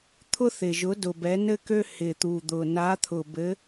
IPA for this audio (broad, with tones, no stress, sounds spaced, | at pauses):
t̪ʰ ʊ˥ θ ɪ˨˩ ʒ ʊ˨˥ d ʊ˨˩ b ɛ˨˥ n ɘ˥ k ø˥ h ɪ˨˩ t̪ u˨˩ d̪ ʊ˨˩ n a˨˥ t̪ʰ ʊ˨˩ b ɘ˨˥